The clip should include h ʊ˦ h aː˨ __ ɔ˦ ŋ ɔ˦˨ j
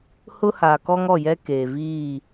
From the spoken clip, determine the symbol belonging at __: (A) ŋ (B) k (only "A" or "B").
B